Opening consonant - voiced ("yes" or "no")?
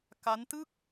no